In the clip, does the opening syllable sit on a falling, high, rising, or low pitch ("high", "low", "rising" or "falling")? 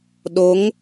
rising